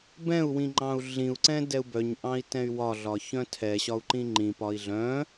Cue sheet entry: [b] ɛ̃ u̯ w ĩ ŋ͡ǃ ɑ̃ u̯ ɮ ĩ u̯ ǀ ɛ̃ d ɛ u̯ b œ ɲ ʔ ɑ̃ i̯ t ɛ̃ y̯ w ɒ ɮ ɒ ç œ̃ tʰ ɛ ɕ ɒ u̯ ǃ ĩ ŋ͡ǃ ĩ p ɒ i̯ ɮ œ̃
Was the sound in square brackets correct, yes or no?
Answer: yes